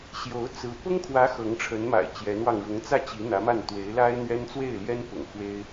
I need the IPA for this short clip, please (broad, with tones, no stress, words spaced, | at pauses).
ɕjo˧˥ʊ̯ t͡sɹ̩˧˥ pʊ˥ŋkʰwä˧˥ xɤ˧˥ŋʈ͡ʂʰə˧˥nma̰˨˩ɪ̯ t͡ɕjɛ˧˥nwɑ˧ŋ ɻʊ˧˥ŋt͡sä˥˩t͡ɕi˧˥ n̪ä˧˥ma˥˩n t̪we˧˥ɪ̯la˥ɪ̯n̪ɥɛ˥n t͡swe˥˩ɪ̯ljɛ˥npʊ̰˨˩ŋ xwe˥ɪ̯